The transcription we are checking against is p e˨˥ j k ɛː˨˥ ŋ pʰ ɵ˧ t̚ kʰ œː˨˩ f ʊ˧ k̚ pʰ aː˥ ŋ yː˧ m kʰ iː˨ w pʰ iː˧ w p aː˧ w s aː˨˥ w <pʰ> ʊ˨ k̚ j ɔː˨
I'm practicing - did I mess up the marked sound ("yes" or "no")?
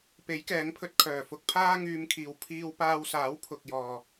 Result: no